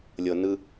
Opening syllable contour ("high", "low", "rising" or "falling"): low